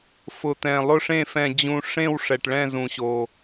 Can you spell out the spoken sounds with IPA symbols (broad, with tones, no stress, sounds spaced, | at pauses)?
f ʊ˨˩ t̪ ɛ̃˨˩ lˠ ʊ˦˨ ʂ ẽ˦˨ f ɛ̃˨˩ d͡ʑ ũ˨˩ ʂ ẽ˦˨ w ʂ ɛ˨˩ ʈ ɭ ɛ̃˦˨ z ũ˨˩ ɕ o˨˩